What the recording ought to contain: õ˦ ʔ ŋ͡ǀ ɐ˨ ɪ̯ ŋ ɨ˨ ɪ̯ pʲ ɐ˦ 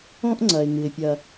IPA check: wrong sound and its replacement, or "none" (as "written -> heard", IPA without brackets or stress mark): none